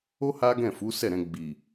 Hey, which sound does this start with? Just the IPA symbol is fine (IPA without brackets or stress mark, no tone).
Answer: o